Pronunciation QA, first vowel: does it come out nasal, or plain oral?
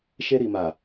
oral